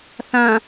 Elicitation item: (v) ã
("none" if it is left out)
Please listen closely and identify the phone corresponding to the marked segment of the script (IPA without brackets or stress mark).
θ